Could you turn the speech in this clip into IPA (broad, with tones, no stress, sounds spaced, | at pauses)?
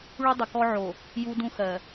ɭ u˦ dˤ ə˨ k ɔ˦ ʕ o˨ | j u˦ d ũ˦ x ɜ˨